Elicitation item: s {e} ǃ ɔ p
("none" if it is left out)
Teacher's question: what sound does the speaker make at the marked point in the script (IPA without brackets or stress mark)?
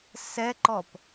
ɛ